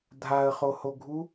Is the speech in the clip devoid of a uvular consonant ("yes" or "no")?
no